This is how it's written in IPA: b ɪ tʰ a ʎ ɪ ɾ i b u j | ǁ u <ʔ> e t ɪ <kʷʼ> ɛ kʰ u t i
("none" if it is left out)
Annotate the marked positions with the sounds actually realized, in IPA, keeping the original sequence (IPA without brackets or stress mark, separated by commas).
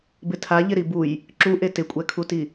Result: ʔ, kʷʼ